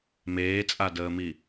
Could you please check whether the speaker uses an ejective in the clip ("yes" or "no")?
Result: yes